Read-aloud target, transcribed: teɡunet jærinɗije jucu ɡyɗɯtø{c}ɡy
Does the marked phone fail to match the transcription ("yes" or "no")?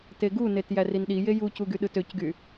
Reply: no